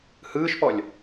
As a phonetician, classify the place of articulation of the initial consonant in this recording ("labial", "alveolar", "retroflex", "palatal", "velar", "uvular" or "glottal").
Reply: glottal